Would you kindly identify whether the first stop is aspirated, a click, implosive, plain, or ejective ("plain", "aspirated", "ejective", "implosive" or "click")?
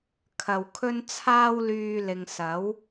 aspirated